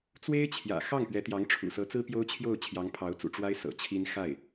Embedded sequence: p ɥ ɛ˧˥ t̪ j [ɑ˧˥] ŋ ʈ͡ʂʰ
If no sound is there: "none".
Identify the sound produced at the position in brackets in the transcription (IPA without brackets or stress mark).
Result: ɑ˧˥